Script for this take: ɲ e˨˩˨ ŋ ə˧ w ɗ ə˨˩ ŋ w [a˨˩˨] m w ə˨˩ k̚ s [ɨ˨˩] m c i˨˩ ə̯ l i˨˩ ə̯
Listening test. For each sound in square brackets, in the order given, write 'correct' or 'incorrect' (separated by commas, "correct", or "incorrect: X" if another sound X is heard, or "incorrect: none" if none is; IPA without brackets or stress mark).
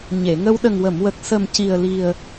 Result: incorrect: ə˨˩˨, incorrect: ə˨˩